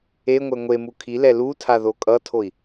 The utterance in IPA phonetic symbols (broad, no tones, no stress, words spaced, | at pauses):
eŋʷɛ ŋʷemu kʰilɛ lutʰa ðokʼʌtʰoi̯